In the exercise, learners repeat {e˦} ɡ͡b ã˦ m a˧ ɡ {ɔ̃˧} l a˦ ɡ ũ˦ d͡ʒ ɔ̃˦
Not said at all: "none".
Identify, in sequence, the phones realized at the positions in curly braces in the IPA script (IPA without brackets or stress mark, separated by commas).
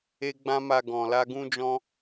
e˦, ɔ̃˧